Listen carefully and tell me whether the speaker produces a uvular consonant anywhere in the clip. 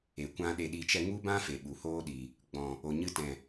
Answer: no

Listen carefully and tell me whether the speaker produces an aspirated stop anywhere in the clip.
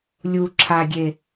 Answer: yes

